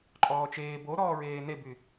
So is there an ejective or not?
yes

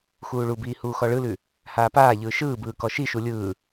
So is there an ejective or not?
no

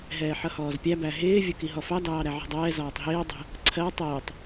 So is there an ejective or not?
no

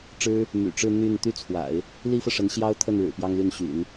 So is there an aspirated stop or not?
yes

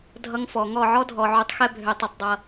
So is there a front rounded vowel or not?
yes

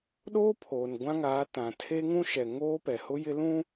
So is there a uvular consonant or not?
no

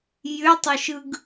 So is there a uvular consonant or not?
no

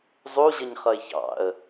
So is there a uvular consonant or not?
yes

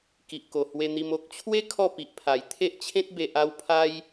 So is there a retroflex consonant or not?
no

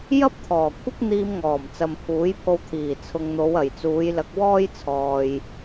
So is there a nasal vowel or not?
no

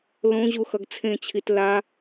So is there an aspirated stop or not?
yes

